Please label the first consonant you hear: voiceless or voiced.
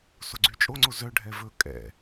voiceless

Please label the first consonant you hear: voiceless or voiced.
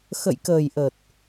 voiceless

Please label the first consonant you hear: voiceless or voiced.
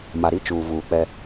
voiced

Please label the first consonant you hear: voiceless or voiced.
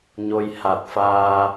voiced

